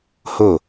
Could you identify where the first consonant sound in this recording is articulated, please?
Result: glottal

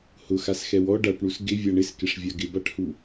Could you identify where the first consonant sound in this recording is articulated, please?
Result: glottal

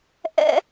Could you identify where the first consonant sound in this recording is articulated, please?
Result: glottal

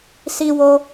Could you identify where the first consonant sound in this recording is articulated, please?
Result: alveolar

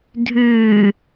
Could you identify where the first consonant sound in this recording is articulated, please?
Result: alveolar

